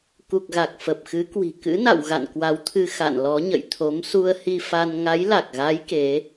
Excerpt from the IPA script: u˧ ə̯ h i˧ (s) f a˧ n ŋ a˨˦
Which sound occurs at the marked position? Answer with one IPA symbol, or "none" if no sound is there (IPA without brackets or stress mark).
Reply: none